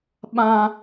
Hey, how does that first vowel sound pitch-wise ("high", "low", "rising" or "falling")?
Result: high